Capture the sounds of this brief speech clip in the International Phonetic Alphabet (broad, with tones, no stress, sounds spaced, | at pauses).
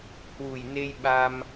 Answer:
h w u˨˩ j n e˧ j ɓ a˧ m